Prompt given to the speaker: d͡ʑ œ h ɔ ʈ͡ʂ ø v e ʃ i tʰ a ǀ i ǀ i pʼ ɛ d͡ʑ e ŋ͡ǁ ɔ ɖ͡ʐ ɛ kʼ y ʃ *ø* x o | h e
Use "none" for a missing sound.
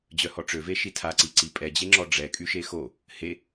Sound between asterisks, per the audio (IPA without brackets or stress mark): e